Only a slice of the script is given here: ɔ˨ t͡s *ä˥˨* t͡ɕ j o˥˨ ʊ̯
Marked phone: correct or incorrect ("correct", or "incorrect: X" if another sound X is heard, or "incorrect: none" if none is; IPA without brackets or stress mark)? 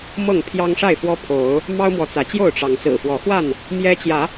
incorrect: ä˨˦